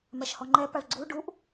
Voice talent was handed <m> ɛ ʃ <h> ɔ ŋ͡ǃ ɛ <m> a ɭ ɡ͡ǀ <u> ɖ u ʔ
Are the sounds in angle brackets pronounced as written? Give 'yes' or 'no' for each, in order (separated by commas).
yes, yes, no, yes